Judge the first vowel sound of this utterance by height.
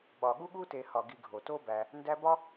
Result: low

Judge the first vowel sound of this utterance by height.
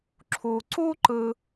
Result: high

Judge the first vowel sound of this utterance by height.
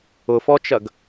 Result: high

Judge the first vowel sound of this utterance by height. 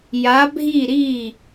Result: low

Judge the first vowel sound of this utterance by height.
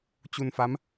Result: high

